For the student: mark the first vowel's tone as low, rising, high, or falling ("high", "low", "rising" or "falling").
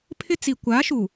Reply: high